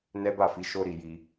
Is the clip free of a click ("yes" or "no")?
yes